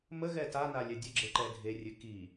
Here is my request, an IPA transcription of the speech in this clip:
m ə ɣ ɛ t a n a lʲ ɛ dʲ ə ɡ͡ǁ e ǃ ɛ dʱ e rʲ ɨ k i

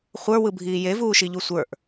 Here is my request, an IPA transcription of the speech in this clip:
χʷ ə˞ w ɯ bʱ iː j e v uː ʃ i ʎ u sʷ ə˞ ʔ

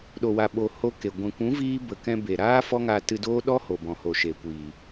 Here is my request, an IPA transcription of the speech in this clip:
ɗ o˨ w a˨ ɓ o˨ h o˧ k e˨ ɡʷ ɛ̃˨ kʷ ũ˨˦ v iː˦ b ə˨ k ɛ̃˧ b e˨ ɾ aː˦ f ɔ˦ ŋ a˧ t ɨ˧ d oː˦ ɗ ɔ˦ h o˨ b ɔ̃˨ h o˨ ʃ e˨ kʷ iː˨

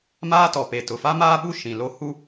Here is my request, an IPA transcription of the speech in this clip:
m aː˦ t ɔ˨ p e˨ t ʊ˨ f a˦ m aː˦ ɓ u˦ ʃ ĩ˨ l o˦ h u˦

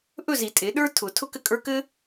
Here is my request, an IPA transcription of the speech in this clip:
ʔ ɵ˥˨ z i˨˩˦ tʼ e˨˩˦ ɗ ə˞˦ tʰ ʊ˨˩˦ tʰ ʊ˥˨ k ɘ˥˨ kʼ ə˞˦ k ɘ˦

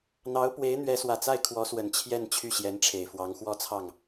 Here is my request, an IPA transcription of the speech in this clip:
n̪ ɑ˧˥ ʊ̯ p w e˧˥ ɪ̯ n̪ ɥ ɛ˧˥ s w ä˨˩ t͡s a˥˩ ɪ̯ kʰ w ɔ˧˥ s w ə˨˩ n t͡ɕʰ j ɛ˥˧ n t͡ɕʰ y˥˩ ɕ j ɛ˧˥ n ʈ͡ʂʰ e˨˩ ɪ̯ f w ɑ˧˥ ŋ x w ɔ˥ t͡sʰ ɑ˥˩ ŋ

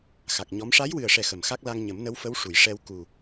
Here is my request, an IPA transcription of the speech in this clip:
x a˨˩ k̚ ɲ ɔ˧˥ m ʂ a˧˥ j w ɨ˨˩ ə̯ ʂ ɛ˨˩ x ə˨˩ m x a˦˥ k̚ l a˧ ŋ ɲ ə˨˩˦ m n ə˧˥ w f ə˧˥ w ʂ u˨˩˨ j ʂ ɛ˧ w k u˨˩

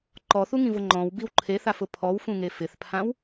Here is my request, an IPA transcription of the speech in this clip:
ǃ ɔ θ u ŋ ĩ v ʊ ŋ͡ǃ ɔ̃ w b i w ǃʰ e θ a f ʊ pʰ ɔ w f ũ ŋ e f ɪ θ pʰ ã w

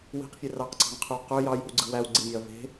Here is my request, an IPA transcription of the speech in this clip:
w i̤ q fʲ e r ɑ q ǀ ɑ̤ ŋ qʰ y w q ø j ɑ j i̤ w ɡ͡ǀ ɯ w æ w ɡ͡ǀ i mʲ e ɐ̯ v e̤

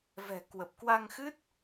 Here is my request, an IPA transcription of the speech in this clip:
v ɛ̤˨˩ k w ə˨˩ p̚ k w a˧ ŋ x ɨ˦˥ t̚

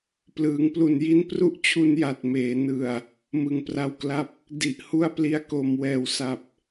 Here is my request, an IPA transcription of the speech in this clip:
p l ɯː˩˦ ŋ p l u˨˩ n j i˦˥ n p r u˦˥ ʔ t͡ɕʰ u˧ n j a˨˩ t̚ m eː˩˦ n ɯ˨˩ a̯ | m ɯ˨˩ ŋ p r a˧ w k l a˥˩ p̚ | d i˨˩ ʔ h u˥˩ a̯ p l i˦˥ a̯ k o˧ m w ɛː˨˩ w s a˨˩ p̚

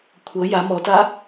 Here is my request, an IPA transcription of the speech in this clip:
kʷʰ ɤ j a m ɔ t a

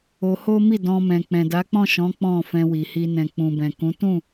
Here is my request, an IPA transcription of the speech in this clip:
o˧ h o˦ m i˦˨ d ɔ̃˧ m ɛ̃˨ k͡p ɛ̃˨ d a˨˦ k͡p ɔ̃˦˨ ʃ ɔ̃˨˦ k͡p ɔ̃˦˨ f ɛ̃˧ w i˨ h i˧ n ɛ̃˨ k͡p ũ˨ b ɛ̃˨ k ũ˨˦ t ũ˦˨

